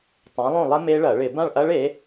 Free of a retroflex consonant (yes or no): no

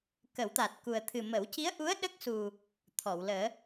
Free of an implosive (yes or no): no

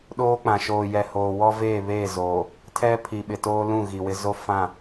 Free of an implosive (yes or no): no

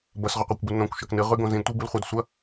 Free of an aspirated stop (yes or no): yes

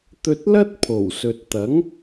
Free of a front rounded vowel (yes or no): yes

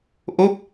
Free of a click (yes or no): yes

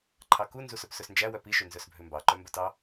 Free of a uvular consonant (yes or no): yes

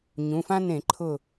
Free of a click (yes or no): no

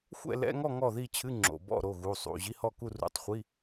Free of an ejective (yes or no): yes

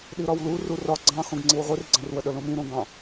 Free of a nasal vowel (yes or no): no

